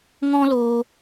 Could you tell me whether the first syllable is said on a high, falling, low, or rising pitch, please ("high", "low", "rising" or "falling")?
high